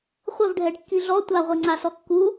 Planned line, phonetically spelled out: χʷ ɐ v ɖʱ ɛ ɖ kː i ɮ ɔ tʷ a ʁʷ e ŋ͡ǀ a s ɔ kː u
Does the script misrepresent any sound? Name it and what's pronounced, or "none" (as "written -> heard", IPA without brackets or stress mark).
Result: none